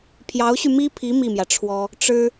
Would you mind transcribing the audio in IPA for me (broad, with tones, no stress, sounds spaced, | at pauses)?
pʰ j ɑ˧˥ ʊ̯ ɕ y˧ m i˥ pʰ i˧˥ m i˥˩ m j ä˩ ʈ͡ʂʰ w ɔ˥ | ʈ͡ʂ ɻ̩˥